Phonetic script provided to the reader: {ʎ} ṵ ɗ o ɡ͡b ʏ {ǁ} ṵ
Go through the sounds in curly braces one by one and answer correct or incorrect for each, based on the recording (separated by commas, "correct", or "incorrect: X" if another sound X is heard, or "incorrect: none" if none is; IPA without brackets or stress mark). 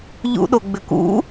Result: correct, incorrect: k